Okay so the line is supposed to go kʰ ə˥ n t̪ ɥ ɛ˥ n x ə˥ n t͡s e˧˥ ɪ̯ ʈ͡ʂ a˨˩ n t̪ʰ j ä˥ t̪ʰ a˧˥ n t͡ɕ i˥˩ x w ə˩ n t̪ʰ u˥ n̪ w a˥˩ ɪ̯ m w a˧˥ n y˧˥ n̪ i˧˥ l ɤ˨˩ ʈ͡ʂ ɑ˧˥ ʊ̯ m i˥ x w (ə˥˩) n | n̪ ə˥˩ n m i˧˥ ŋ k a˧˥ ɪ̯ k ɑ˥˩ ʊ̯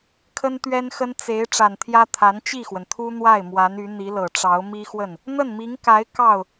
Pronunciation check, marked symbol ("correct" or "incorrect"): correct